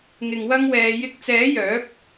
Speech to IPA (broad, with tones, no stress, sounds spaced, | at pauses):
ŋ ɪ˧ ŋ w ɐ˥ ŋ w ɛː˨ j ɪ˧ k̚ t͡s ɛː˨˥ j œː˨˥ p̚